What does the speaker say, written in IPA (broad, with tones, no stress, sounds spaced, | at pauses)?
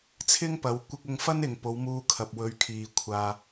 t͡sʰ ɪ˥ ŋ p ɐ˨˧ w kʷ ɪ˧ k̚ ʊ˧ ŋ f ɐ˥ n ɪ˨ ŋ p o˨˧ w m uː˧ kʰ ɐ˨ p̚ w ɵ˨˧ ɥ kʰ iː˨ kʷʰ aː˧